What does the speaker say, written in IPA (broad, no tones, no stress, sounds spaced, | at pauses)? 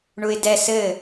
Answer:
ɳ u ɪ̯ d ɛ s ɘ